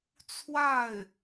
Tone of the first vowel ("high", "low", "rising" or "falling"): falling